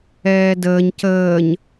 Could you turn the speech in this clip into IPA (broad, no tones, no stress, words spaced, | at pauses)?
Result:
ɛːdəːɲ cəːɲ